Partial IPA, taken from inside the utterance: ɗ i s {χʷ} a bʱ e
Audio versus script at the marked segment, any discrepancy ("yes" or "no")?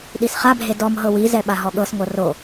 yes